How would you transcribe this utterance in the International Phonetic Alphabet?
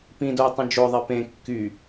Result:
p ĩ d o j tˤ ẽ d͡ʒ o ðˤ e p ẽ kː y

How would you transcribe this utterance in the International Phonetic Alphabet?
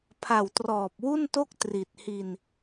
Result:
pʰ a˨˩ w t r ɔː˨˩ p̚ w u˥˩ n t o˥˩ k̚ t r i˨˩ t̚ h i˧ n

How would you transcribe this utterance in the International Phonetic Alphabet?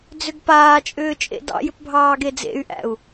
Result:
d͡z ʏ ɡ p aː t͡ʃʼ ʏː t͡ʃʼ ḛ d ɑ̰ j ʏ p bʱ ɑː ɡ e d͡z ḛ y̯ ʔ æ̰ u̯

